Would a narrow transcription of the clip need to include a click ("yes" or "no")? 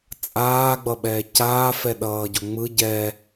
no